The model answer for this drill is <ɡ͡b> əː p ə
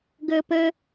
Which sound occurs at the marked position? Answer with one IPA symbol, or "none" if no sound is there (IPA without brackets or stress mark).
ɡ